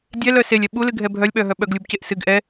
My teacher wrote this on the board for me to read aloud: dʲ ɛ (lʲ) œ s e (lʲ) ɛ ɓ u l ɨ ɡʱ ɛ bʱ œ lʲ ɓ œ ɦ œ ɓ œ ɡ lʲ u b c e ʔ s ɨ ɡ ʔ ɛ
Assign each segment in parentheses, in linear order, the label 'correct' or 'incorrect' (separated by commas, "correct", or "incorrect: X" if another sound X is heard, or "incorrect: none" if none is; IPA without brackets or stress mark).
incorrect: l, correct